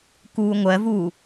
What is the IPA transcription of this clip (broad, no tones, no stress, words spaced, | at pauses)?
kuːŋʷɜvuː